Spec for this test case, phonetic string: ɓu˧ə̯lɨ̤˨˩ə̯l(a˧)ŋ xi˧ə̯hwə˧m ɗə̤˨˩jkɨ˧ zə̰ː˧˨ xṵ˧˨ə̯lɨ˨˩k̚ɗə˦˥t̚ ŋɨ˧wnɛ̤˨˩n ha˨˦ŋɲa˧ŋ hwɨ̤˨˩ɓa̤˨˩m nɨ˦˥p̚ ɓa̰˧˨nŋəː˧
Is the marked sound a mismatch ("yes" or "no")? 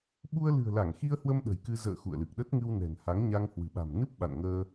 yes